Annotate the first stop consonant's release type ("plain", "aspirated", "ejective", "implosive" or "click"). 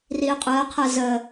ejective